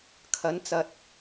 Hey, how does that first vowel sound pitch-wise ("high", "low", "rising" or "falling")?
rising